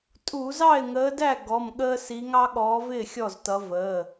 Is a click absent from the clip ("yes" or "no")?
yes